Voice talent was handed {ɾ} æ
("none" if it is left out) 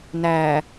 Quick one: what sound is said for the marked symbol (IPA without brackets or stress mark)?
n